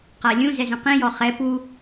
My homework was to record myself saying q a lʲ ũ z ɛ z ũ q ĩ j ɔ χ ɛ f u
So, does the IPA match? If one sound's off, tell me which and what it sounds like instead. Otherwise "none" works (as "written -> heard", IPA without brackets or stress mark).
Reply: f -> p